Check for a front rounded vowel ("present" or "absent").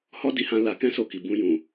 absent